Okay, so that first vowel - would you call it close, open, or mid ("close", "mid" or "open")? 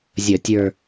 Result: mid